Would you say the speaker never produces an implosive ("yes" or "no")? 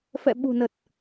no